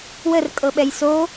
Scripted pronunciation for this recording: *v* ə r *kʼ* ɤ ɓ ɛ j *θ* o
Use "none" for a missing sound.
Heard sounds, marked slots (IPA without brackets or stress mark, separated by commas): w, kʼ, s